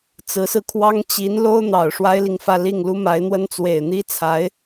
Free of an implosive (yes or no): yes